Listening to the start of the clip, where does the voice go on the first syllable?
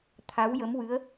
rising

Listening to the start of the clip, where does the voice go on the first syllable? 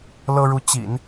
high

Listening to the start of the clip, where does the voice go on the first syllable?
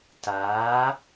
rising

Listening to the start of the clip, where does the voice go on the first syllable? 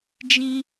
high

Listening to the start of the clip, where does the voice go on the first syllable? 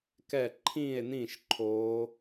falling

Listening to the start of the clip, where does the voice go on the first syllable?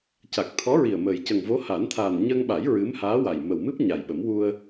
low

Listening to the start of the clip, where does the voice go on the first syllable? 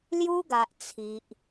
high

